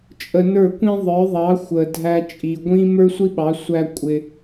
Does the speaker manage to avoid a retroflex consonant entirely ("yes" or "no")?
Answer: yes